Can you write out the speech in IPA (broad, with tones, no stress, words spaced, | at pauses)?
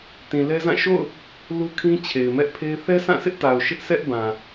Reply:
tĩ˨lɛ˦zã˦˨ ʃo̰˦˨ʊ̯ | lu˦kʰĩ˦ t͡ɕʰe˨ɪ̯mɛ˦ʔpʰe˦ɪ̯ θɛ˦sʰã˦˨sʰɪ˦ʔta˨ʊ̯ ʃɪ˦ʔsɛ˦ʔbã˨